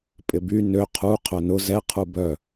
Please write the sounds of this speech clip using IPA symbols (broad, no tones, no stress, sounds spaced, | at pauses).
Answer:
pʼ ɪ b y n ø qʰ u qʰ œ n ʊ z ɛ qʰ u b œ